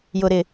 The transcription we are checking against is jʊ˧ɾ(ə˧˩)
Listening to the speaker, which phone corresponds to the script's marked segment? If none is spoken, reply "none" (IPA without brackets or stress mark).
ɪ˧˩